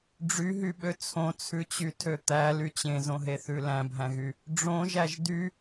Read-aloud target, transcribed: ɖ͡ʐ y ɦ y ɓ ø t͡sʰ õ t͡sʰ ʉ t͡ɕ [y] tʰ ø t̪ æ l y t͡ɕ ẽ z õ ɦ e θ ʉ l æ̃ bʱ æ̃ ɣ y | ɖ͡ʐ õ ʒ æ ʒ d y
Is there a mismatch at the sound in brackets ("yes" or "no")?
no